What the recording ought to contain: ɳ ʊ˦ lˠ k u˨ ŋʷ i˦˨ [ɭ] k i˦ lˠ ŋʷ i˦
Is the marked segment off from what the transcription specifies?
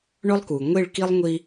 no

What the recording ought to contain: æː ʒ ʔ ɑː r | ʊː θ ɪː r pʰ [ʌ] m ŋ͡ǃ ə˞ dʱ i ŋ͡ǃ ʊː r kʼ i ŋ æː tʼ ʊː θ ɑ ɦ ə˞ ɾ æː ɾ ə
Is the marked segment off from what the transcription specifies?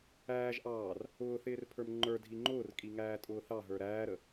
yes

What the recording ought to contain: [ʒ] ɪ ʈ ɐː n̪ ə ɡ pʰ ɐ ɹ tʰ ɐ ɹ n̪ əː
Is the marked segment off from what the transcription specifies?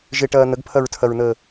no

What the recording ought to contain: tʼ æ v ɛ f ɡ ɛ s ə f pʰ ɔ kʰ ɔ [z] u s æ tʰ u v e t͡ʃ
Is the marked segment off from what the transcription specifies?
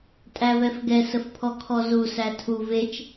no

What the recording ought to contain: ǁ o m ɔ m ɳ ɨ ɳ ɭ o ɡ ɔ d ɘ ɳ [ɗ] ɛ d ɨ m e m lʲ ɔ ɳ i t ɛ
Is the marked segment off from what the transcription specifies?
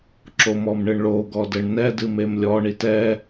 yes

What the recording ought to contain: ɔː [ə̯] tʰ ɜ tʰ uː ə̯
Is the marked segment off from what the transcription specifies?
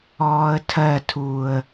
no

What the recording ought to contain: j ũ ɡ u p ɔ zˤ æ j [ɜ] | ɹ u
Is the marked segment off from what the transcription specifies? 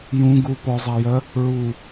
no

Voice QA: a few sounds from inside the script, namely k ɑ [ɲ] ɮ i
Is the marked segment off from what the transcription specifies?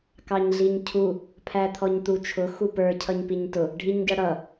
no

